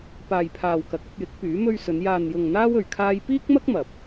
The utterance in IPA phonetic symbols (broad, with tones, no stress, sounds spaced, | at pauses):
p aː˨ j pʰ aː˨ w k ɐ˨˥ k̚ ɐ˧ p̚ j ɪ˨˥ k̚ p yː˨˥ m ɵ˥ ɥ s ɵ˨˧ n j aː˨ n j ʊ˨ ŋ n̪ aː˥ w ɵ˨ ɥ kʰ aː˧ j p iː˥ k̚ m ɐ˥ k̚ m ɐ˨ p̚